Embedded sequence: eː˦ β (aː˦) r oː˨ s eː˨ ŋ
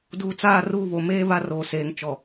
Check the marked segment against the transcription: incorrect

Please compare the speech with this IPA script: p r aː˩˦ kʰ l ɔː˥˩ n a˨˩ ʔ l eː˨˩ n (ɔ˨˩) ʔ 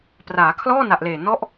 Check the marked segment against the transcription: incorrect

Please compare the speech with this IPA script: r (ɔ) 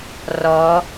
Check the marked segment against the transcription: correct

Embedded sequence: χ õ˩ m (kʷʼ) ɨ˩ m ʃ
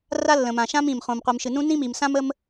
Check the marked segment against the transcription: incorrect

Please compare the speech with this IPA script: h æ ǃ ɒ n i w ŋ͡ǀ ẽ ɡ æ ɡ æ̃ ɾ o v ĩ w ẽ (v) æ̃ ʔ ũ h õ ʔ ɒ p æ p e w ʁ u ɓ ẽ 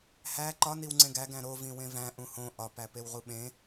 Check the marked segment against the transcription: correct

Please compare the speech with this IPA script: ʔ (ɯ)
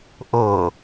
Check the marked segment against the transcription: incorrect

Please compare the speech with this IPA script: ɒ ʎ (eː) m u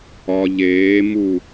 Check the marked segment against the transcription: correct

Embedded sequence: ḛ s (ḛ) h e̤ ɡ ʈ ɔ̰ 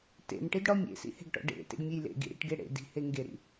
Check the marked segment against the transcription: incorrect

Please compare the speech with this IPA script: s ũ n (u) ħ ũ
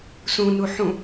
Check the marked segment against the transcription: correct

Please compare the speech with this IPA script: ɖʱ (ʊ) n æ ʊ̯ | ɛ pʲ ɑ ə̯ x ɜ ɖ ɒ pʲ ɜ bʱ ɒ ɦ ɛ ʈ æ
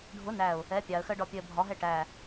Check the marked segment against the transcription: correct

